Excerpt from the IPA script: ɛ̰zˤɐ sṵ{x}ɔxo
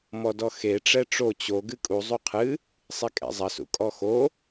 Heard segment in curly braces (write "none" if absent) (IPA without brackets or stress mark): kʼ